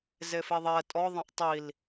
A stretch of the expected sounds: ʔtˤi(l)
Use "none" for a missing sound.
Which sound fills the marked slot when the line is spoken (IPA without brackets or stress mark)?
l